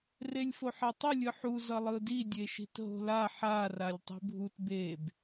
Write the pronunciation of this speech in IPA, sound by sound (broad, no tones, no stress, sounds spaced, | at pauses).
r e lʲ f o ħ ɛ tˤ u lʲ ɯ ħ u z ʌ lˠ ɯ d i dʲ e ʃ i̤ t ɦ o̤ l a ħ a r a lʲ tˤ i̤ bʱ u t b e b